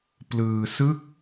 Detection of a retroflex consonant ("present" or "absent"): absent